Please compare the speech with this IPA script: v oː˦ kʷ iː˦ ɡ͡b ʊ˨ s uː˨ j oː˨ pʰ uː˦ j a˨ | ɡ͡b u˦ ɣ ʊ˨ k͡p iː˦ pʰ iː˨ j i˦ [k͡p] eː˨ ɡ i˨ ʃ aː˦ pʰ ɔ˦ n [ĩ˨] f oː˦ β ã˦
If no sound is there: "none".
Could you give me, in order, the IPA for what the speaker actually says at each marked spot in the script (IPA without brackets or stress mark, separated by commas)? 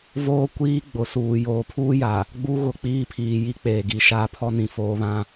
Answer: k͡p, ĩ˨